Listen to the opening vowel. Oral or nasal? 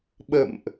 oral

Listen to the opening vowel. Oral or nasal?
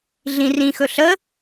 nasal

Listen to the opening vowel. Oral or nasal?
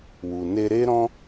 oral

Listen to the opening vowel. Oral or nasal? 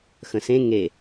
nasal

